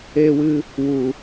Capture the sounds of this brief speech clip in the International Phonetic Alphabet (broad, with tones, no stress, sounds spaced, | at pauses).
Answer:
eː˧ w ɨ˧ | w u˨